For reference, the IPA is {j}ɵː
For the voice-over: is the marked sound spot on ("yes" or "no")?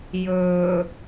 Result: yes